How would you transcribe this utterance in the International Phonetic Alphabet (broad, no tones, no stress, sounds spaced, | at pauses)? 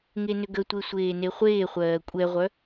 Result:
ŋ e n ʏ ɡ ə tʷ e sʷ eː n e χʷ eː χʷ ɜː kʷʼ ɛ ʁʷ œ